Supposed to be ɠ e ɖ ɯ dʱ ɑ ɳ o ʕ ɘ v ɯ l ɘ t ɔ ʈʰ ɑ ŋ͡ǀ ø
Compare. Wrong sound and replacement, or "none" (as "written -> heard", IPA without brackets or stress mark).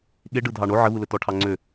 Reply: none